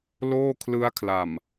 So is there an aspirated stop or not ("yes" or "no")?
yes